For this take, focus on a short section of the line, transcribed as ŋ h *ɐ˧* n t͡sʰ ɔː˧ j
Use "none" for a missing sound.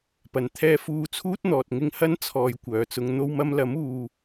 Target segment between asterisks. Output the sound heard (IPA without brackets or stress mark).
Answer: ɐ˥